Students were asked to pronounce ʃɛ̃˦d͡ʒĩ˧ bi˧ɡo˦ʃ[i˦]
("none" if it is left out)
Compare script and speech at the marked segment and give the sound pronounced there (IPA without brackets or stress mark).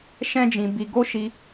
i˧